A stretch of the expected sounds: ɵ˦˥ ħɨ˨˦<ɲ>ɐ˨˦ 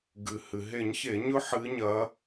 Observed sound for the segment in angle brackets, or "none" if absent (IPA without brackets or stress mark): ɲ